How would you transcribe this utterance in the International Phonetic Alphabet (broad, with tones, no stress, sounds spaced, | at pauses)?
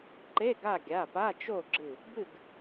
ǃ e˧˥˧ ɡ a˥˨ ɡʲ a˩˧˩ p a˧˥˧ t͡ʃ o˥˨ ɡ͡ǁ ɨ˧˩ | b ɨ˥˨ ɡ